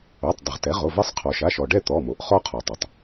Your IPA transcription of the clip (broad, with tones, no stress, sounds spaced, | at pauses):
o˩˧˩ tˤ dˤ ə˩ ʁ t ɛ˩˥ ʁ o˩˧˩ v ɛ˧ sˤ qʰ ɔ˩ ʃ a˩˧˩ ʃ ɔ˩ ɖ ɛ˥˨ t̪ ɔ˩˧˩ m o˩ ʔ χ ɔ˧ qʰ ɔ˩ tˤ ʌ˩ tˤ